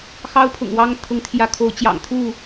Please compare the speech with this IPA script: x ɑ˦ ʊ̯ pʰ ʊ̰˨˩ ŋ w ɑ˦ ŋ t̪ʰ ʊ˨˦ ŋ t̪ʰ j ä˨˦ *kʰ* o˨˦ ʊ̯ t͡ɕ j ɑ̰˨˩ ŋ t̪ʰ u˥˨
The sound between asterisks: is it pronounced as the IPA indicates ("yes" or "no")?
yes